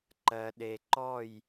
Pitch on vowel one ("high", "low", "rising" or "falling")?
low